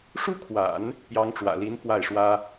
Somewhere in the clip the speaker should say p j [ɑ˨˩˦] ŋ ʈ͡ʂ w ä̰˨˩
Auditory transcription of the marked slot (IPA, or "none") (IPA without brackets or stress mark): ɑ˧˥